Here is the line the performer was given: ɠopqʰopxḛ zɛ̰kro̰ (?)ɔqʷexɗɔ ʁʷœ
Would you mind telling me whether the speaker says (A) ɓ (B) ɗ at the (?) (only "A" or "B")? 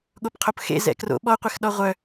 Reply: A